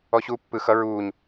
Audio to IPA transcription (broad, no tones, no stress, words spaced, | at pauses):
ɔɕuːpːɯ xʌ ɹuːɲ